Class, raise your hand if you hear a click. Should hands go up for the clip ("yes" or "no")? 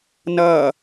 no